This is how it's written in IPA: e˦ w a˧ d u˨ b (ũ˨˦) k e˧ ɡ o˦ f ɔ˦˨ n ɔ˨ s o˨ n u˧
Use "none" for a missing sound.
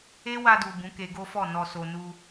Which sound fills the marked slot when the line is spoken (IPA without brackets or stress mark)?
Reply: ũ˨˦